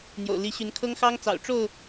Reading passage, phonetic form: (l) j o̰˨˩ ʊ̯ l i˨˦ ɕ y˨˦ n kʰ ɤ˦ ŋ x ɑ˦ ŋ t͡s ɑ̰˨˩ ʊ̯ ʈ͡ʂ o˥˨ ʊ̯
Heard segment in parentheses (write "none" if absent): n̪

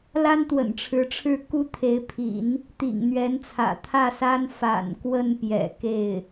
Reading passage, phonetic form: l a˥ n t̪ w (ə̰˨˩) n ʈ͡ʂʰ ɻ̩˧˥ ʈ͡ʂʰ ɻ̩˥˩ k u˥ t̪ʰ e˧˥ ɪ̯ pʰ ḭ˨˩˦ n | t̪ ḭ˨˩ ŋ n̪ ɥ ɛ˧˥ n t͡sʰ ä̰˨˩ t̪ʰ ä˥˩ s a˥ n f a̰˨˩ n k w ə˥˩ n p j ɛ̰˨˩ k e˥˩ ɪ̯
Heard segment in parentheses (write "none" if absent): ə̰˨˩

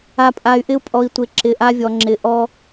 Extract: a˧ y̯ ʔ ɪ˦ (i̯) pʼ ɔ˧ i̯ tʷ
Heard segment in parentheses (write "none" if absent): u̯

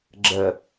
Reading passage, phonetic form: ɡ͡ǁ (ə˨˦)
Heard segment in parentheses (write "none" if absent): ə˨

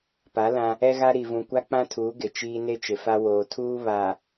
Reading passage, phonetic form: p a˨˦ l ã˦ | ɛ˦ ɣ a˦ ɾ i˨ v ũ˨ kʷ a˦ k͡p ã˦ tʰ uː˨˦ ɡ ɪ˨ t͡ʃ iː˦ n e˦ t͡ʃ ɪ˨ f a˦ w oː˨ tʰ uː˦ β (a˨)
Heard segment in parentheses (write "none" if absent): a˨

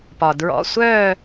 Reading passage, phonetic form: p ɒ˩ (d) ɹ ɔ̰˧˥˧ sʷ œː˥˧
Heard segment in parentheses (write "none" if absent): d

